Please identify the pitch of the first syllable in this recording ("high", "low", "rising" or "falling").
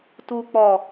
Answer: low